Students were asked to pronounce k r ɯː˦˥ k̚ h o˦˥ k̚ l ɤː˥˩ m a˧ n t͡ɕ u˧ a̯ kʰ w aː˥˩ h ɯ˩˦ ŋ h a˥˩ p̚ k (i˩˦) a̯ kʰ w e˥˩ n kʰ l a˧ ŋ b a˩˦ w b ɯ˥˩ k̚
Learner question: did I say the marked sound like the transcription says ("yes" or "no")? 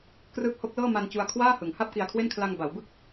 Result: no